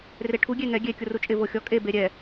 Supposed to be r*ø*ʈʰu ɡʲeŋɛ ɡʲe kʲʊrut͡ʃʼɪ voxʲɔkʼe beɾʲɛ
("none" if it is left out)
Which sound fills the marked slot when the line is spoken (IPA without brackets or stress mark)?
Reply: e